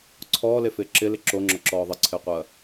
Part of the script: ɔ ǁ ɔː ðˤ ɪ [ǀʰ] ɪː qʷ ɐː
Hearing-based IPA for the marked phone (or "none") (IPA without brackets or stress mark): ǀʰ